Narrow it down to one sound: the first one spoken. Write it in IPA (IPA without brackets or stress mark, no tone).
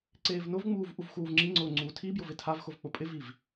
ǀ